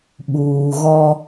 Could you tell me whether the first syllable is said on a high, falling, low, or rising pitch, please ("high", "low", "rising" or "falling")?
low